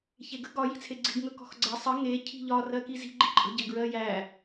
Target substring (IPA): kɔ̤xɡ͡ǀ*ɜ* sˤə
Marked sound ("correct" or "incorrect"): correct